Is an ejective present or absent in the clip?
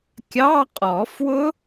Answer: present